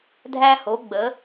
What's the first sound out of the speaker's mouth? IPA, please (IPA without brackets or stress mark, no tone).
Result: dʱ